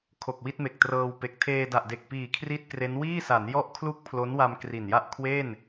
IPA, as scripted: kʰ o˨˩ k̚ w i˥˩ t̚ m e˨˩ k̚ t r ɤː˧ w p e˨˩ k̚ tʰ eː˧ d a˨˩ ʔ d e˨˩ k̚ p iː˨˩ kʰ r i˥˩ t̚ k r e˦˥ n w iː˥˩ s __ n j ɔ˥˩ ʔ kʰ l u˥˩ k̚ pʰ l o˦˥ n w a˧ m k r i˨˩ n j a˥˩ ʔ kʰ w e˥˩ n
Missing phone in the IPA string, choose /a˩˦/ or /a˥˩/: a˩˦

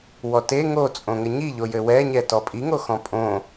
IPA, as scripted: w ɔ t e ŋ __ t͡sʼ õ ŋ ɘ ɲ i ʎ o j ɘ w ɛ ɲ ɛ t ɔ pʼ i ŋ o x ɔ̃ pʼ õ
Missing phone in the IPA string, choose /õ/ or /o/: o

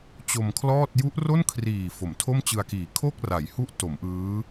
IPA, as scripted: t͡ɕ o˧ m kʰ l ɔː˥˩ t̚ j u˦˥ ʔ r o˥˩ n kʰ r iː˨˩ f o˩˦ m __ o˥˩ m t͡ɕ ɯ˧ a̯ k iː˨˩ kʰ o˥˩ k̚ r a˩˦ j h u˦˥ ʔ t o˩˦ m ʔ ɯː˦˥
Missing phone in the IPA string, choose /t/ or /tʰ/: tʰ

